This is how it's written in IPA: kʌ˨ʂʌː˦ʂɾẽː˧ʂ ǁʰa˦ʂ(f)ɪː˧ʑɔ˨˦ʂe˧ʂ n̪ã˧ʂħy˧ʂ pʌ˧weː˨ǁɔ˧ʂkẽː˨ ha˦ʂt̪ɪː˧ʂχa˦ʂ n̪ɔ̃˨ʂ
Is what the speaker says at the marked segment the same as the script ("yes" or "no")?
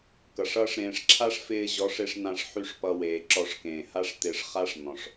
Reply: yes